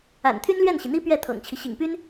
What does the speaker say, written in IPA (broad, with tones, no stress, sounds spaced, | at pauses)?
a̰˨˩ n t̪ʰ y˥ n l ɥ ɛ˥˩ n ɕ i˩ n̪ i˥ p ɥ ɛ˥˩ t̪ʰ ɤ̰˨˩ ŋ t͡ɕʰ i˦ ɕ ḭ˨˩ ŋ p y˥ n